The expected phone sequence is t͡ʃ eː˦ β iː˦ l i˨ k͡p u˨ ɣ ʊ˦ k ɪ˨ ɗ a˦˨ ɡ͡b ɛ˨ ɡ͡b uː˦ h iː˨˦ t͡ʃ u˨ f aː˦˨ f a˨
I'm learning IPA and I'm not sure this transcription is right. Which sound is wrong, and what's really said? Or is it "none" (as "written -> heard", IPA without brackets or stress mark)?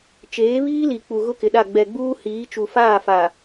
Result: eː˦ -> eː˨˦